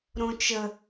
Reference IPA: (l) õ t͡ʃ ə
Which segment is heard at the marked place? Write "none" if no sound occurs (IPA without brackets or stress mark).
ɾ